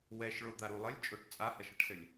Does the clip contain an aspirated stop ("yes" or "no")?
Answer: no